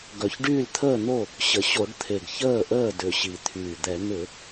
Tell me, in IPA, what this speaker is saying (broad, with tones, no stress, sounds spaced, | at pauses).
ɡ œ˨˩ ç ɖ yː˥˩ l t̪ʰ əː˥˩ n̪ o˥˩ | ɕ ə˨˩ ɕ o˧˩˧ ɖ t̪ʰ e˨˩ ɡ ç əː˥˩ ʔ əː˥˩ d ʏ˨˩ ɕ i˨˩ t̪ʰ yː˨˩ d̪ ɛ˧˩˧ n̪ ʏ˧˩˧